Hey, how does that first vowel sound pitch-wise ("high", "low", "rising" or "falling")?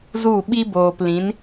falling